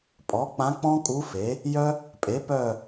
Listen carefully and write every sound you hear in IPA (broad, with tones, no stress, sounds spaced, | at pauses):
pʼ ɔ˩˥ k͡p ã˧˥ k͡p ɔ̃˥ kʼ u˧˥ f e˩˥ | j œ˥ | pʼ e˩˥ p œ˦˨